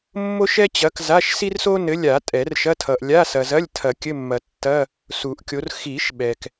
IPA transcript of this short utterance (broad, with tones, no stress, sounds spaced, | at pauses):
mː o˥ ʃ ɛ˥ t͡ɕ ɐ˨˥ k z a˧˥˧ ʃ s i˥ r s o˥ n ɘ˨˥ lʲ a˨˩˦ tʼ ɛ˨˩˦ r ʃ ɐ˧˥˧ tʰ ʌ˨ ʔ lʲ a˧˥˧ s ɐ˨ z ɐ˧˥˧ lʲ tʰ ɐ˨˩˦ kʲ ɘ˧˥˧ mː ɐ˨˩˦ tː ɐ˧˥˧ | s u˨˩˦ ʔ kʲ o˨˥ r x i˨˩˦ ʃ ɓ ɛ˨ k